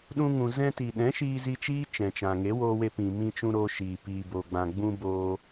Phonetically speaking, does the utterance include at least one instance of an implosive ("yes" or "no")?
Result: yes